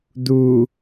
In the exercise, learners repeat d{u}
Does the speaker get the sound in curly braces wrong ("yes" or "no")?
no